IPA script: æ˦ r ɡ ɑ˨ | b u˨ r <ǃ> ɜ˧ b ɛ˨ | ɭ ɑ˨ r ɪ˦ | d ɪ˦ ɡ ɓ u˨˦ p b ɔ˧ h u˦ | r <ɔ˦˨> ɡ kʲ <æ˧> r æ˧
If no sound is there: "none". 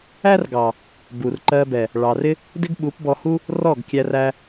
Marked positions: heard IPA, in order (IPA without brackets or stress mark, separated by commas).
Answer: ǃ, ɔ˦˨, æ˧